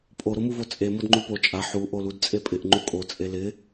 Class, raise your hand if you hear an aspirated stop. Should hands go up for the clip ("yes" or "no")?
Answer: no